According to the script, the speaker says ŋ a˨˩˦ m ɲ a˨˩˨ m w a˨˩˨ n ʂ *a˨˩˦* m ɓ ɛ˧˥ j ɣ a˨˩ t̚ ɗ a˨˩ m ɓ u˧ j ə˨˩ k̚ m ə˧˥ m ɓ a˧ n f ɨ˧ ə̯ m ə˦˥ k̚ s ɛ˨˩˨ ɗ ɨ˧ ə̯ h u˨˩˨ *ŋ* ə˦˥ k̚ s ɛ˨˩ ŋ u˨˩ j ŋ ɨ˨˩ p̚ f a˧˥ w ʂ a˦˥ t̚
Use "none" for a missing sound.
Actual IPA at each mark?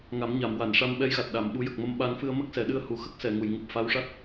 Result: a˧, x

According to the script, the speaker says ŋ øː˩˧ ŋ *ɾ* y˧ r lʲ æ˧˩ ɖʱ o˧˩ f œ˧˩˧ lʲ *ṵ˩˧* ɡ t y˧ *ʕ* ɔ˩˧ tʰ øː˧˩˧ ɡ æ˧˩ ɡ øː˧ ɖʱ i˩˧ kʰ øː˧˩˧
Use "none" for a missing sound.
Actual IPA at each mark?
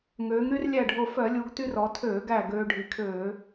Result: ɾ, u˩˧, r

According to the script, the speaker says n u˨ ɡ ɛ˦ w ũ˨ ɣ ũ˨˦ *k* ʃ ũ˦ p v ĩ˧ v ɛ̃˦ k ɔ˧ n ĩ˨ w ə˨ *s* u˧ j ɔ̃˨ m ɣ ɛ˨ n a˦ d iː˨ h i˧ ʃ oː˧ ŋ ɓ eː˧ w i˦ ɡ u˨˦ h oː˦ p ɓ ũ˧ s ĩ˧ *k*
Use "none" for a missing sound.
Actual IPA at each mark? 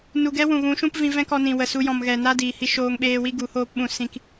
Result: none, s, k

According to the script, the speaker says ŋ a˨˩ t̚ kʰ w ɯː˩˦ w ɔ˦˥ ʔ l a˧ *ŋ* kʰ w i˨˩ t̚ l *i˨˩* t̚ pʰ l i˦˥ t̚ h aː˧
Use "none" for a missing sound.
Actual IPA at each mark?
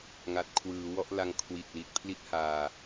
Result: ŋ, i˨˩

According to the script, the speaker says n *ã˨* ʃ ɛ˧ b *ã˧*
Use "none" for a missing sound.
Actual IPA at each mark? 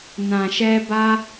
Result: ã˨, a˧

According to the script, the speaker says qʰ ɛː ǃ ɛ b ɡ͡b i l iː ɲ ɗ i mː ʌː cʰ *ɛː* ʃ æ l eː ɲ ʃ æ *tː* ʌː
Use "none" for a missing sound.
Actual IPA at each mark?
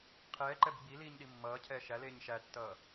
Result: ɛː, tː

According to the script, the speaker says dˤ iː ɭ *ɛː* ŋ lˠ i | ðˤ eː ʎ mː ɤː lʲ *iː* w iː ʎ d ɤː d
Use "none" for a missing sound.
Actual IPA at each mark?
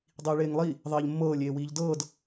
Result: eː, eː

